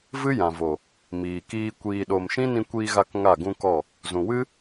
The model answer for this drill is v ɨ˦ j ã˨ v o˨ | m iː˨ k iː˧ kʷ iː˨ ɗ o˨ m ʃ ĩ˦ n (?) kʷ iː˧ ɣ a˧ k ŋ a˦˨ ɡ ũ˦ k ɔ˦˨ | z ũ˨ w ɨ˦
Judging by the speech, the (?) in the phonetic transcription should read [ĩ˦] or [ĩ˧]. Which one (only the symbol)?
ĩ˧